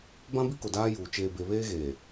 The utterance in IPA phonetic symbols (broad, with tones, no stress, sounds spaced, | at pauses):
b ã˦ b i˦ k o˨ d aː˦ j uː˨ t͡ʃ eː˨ b e˨ β eː˦ ɣ eː˨